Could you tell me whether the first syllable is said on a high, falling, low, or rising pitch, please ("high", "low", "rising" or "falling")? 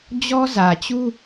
high